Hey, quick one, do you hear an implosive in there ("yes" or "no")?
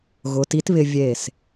no